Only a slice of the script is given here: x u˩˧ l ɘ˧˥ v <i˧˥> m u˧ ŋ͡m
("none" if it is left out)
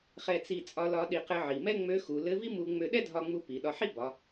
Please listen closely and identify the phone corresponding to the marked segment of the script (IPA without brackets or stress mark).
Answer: i˥